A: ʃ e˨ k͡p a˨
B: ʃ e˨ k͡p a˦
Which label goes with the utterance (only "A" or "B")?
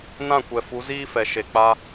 B